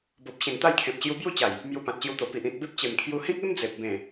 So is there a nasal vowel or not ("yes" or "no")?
yes